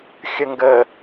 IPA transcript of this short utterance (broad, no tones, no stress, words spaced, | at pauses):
xʲəŋɡə